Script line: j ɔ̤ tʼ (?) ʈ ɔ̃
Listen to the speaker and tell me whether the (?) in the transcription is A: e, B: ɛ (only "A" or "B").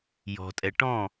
B